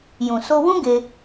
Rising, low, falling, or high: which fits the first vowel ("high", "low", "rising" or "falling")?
low